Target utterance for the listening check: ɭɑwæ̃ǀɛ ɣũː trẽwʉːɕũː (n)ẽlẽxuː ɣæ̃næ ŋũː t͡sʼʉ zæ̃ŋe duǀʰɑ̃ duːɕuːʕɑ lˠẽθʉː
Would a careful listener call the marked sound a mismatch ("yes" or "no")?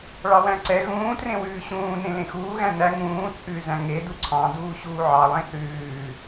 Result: no